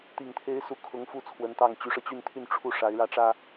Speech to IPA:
t̪ i˨˩ ŋ t̪ʰ e˧˥ ɪ̯ s u˧˥ kʰ ʊ˧˥ ŋ f u˥˩ t͡sʰ w ə˧˥ n t̪ ɑ˥˩ ŋ t͡ɕ y˧˥ ʂ ɤ˧ t͡ɕ y˥˧ n t̪ʰ y˥˧ n ʈ͡ʂʰ u˥˩ ʂ a˧˥ ɪ̯ ɻ ä˥ ʈ͡ʂ ä˥

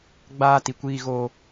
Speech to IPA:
ɡ͡b aː˦ t i˨ kʷ iː˦ ɣ oː˦

